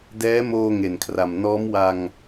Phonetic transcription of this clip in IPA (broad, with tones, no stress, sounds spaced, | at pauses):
d ɛː˦˥ m oː˧ ŋ e˨˩ n kʰ r a˨˩ m n ɔː˦˥ m w a˧ ŋ